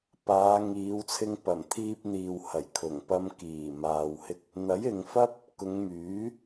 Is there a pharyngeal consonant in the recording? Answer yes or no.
no